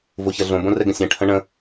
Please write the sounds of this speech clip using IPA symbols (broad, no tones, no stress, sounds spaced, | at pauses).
v o ç ɐ ɮ õ b õ r ɛ ɡ ə̃ sʲ ɛ̃ ʈʰ ə̃ ɳ ə̃